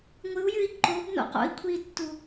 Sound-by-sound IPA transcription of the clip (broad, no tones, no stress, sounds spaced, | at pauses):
ŋʷ ɨ u̯ j ɨ i̯ ǃ o b n o̰ q o̰ i̯ kʷʰ i tː u